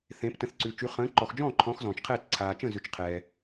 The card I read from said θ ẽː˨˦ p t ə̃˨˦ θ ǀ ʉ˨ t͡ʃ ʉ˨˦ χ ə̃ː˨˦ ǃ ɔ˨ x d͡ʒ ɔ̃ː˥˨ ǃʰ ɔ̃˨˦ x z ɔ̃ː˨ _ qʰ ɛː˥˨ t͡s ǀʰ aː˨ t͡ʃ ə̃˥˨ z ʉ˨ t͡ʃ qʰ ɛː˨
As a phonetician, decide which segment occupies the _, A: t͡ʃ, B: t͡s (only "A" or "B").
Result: A